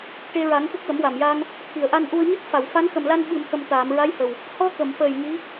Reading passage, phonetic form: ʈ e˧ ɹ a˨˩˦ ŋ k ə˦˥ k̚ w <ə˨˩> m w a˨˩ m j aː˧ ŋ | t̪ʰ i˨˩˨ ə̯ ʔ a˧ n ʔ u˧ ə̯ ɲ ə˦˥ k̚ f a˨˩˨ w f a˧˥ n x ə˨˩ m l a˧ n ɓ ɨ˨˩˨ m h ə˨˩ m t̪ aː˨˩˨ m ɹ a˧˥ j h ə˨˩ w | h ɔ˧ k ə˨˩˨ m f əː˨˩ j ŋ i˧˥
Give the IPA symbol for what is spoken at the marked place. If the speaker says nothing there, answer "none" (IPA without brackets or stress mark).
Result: ə˨˩˦